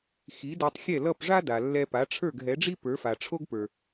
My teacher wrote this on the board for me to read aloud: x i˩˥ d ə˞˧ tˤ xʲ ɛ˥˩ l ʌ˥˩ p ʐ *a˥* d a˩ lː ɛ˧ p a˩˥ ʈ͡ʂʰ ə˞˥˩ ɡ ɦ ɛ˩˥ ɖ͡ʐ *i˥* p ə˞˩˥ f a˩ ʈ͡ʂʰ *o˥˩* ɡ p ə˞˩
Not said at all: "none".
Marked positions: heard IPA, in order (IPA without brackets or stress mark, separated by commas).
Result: a˥, i˥, o˥